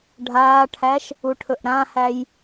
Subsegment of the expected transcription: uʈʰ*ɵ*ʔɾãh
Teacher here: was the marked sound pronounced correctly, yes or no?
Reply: yes